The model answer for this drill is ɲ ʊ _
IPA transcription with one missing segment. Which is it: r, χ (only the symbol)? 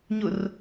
r